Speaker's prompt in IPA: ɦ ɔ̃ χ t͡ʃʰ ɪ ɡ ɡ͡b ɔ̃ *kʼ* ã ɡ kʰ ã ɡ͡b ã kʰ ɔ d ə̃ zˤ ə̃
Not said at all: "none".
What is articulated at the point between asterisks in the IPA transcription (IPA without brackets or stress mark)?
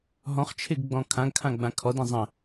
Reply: kʰ